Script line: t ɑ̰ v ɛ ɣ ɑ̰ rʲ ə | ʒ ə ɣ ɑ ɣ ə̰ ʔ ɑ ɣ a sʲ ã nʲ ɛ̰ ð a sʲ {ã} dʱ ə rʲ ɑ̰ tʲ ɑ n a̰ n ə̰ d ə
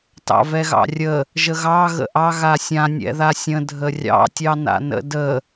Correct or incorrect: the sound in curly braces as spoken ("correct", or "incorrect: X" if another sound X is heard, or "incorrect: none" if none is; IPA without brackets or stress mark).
incorrect: ə̃